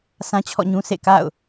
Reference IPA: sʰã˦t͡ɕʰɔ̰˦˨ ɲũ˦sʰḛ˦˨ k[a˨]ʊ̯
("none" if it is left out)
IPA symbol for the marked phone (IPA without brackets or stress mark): a̰˦˨